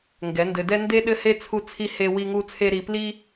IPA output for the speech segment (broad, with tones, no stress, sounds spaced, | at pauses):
ŋ ɡ ɛ˨˦ n d ɘ˧ d ɛ˦ n d e˦ ɗ ɘ˦ h e˦ t͡sʰ u˦ t͡sʰ i˦ h e˦ w i˦ ŋ u˦ t͡sʰ e˦ ɾ i˧ p l i˦